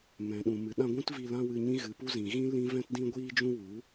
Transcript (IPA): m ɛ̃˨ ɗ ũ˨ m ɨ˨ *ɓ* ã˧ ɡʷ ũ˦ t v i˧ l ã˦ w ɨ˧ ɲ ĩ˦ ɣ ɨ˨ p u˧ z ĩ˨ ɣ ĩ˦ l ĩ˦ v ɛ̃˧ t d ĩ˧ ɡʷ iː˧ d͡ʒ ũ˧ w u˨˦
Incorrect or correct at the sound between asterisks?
incorrect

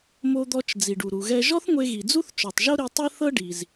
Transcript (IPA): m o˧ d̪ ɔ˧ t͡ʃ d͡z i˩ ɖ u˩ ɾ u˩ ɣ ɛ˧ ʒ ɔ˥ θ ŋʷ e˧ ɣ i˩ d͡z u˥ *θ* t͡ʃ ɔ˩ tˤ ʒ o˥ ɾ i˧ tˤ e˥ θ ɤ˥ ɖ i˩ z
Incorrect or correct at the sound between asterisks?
correct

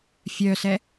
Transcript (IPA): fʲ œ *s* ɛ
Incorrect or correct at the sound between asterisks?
correct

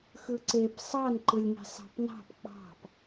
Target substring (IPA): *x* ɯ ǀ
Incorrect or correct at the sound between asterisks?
correct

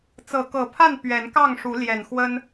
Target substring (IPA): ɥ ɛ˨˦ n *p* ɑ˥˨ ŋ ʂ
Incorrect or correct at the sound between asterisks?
incorrect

